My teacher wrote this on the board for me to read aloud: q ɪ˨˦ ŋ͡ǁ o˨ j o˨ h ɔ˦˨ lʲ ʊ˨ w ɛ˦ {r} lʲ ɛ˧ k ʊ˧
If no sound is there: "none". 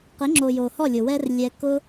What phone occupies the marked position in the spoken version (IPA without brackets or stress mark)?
r